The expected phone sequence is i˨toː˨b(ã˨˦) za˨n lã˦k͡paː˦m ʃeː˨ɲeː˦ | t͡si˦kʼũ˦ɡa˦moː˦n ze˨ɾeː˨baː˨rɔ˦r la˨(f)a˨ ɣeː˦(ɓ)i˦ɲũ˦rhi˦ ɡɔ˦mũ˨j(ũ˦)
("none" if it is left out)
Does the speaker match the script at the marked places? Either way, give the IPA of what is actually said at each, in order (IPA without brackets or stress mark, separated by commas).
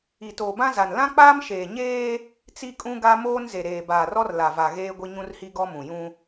ã˦, v, ɡʷ, ũ˦